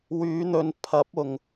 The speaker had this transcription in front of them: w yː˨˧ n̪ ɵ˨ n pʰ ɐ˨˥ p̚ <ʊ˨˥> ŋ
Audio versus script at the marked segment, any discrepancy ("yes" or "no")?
yes